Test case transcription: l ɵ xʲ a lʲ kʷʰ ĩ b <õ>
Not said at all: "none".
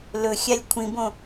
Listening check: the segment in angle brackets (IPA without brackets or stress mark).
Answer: õ